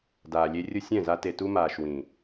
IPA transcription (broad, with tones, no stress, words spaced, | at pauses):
daː˨lʲe˧ rʲʊ˧ sʲɛ̃˦˨za˧ te˨tu˧maː˨ʃ wĩ˨